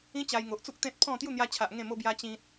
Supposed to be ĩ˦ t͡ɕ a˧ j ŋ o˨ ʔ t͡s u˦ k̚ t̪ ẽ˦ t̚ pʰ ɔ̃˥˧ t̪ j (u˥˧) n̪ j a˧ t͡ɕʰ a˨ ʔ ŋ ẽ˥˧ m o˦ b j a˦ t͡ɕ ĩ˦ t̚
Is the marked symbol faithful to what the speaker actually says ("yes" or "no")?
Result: yes